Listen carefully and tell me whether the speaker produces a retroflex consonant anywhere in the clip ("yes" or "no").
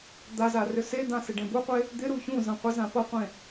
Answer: yes